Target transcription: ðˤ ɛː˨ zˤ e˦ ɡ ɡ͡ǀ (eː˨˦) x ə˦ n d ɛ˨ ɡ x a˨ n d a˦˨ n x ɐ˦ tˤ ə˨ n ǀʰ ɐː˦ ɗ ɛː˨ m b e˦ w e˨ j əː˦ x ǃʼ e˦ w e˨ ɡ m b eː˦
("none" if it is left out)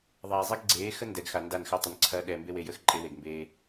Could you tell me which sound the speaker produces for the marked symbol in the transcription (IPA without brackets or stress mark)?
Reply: eː˨˦